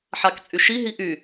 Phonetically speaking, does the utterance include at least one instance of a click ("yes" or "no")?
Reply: no